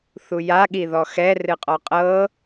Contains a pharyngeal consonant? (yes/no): no